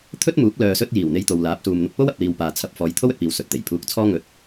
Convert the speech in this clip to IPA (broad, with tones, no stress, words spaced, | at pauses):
t̪ʰɵ˥t̚muː˨˥k̚ lœː˨ sɵ˥t̚ jiː˨˩w n̪e˧jt̪o˨wlaː˨˥p̚suː˨m n̪ʊ˧k̚po˥wɐ˨p̚liː˨w paː˨ t͡sʰɐ˧p̚ fɔː˨˧jt̪ʰo˥wɵ˨t̚piː˨w sɵ˨t̚t̪e˨˩j pʰuː˧k̚t͡sʰɔː˥ ŋɵ˧t̚